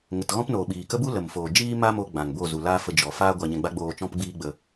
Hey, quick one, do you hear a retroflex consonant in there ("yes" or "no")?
no